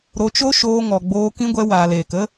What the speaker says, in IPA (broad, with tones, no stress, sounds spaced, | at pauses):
ɾ o˨˦ t͡ʃ o˦ ʃ oː˧ ŋ ɔ˨ ɡ͡b oː˧ k ĩ˦ ɡʷ ɛ˧ w aː˨ l eː˨ k ə˦